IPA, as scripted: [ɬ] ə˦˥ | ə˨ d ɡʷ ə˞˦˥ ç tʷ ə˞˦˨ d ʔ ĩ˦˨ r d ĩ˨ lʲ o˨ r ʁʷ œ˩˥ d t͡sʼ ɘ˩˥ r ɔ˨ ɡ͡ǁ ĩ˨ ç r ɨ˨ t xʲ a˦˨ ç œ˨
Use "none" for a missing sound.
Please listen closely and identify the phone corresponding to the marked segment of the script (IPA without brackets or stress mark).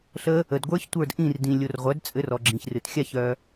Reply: ɬ